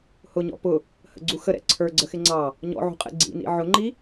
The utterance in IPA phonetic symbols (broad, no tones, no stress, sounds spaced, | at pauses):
h ʊ ɲ ɔ̰ p ʊ | h ə̰ ɡ͡ǀ u x ə ɾ ɛ̰ ǀʰ ə˞ ɡ͡ǀ ə x ɪ ŋ͡ǀ ɑ | ɲ ɔ̰ ʕ ṳ qʼ ɛ̰ ɡ͡ǀ ḭ n ḭ ʕ ʊ ŋ͡ǃ i